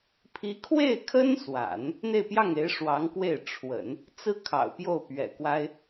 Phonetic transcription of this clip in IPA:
pʰ i˧˥ kʰ w e˥˩ ɪ̯ kʰ ə˥ n s w a̰˨˩˦ n | n̪ e˥˧ ɪ̯ p j ɑ˥˩ ŋ e˧˥ ɪ̯ ʂ w ɑ˧˥ ŋ k w e˥˩ ɪ̯ ʈ͡ʂʰ w ə̰˨˩˦ n | t͡s ɹ̩˥ kʰ ɑ̰˨˩ ʊ̯ p j o˥˩ ʊ̯ p ɥ ɛ̰˨˩ k w a˥ ɪ̯

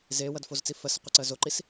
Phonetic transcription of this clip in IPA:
z eː w ɐ d f o z t͡s i f ɜ s ʌ qʷ e ǀ ɜ z o ǃ i s

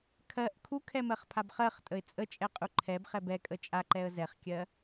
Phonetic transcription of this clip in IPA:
kʰ ɜ ʔ kʰ u kʰ ɛ m ɜ χ pʰ a b χ ɜ χ tʼ ə ɪ̯ t͡sʼ ə t͡ʃʼ ɛ qʼ u ǃʰ ɛ b χ ɛ b ɛ kʼ ə t͡ʃʼ a ǃ ɛ ə̯ z ɛ χ kʲ ɜ

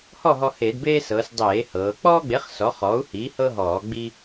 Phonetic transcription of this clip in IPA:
h ɔ˥˨ ɦ ɔ˦ h e˧˩˧ d b eː˦ s ɤː˩˧ s dˤ eː˧˩˧ h ɤː˩˧ k͡p ɔː˦ ɡ͡b e˩˥ χ s ɔ˩˥ χ ɔː˩˥ u̯ h iː˩˥ h ɤ˦ ɦ ɔː˧˩˧ ɡ͡b i˦

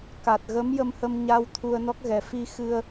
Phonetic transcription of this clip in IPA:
k a˨˩ t̚ ɣ ə˧˥ m j ə˧ m h ə˧ m ɲ a˧ w t̪ʰ u˧ ə̯ n ɔ˦˥ k̚ ɣ ɛ˨˩ f i˧ x ɨ˧ ə̯

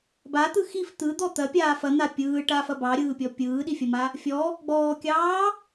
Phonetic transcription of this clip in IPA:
b a t̪ ɯ x i f t̪ ɯ d̪ ɔ t̪ ɐ pʲ aː f ɐ n̪ a pʲ ɯː ʈ a f ɐ b ɑ ɾʲ ɯː pʲ ɔ pʲ ɯː ɗ i fʲ ɐ m a | fʲ ɔ | ɡ͡b ɔː kʲ ɑː

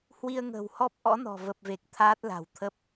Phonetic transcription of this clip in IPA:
h w i˧ ə̯ ŋ ə̤ː˨˩ w h ɔ˦˥ p̚ ʔ ɔ̰˧˥ n ɔ̤˨˩ v ə˨˩ p̚ v e˨˩ k̚ t̪ʰ aː˦˥ t̚ l a̤˨˩ w t̪ʰ ə˦˥ p̚

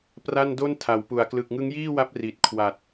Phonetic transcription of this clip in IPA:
p r a˥˩ n d o˥˩ n tʰ a˩˦ w p u˨˩ a̯ k l ɯ˨˩ k̚ ŋ ɯ˦˥ ŋ j iː˥˩ w a˦˥ p̚ r i˨˩ t̚ kʰ w a˨˩ t̚

